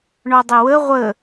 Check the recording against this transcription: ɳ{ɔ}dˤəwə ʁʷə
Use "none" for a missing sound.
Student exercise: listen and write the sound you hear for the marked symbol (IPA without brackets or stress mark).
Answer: ɔ